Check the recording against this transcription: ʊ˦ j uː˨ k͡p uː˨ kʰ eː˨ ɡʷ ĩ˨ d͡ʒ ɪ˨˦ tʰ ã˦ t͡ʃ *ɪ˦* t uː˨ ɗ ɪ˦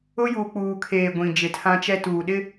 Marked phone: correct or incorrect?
incorrect